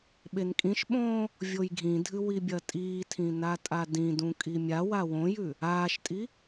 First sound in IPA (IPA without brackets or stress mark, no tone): ɓ